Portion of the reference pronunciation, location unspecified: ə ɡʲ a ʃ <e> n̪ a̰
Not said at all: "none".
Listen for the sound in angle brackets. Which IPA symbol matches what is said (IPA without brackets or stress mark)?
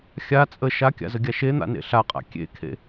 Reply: e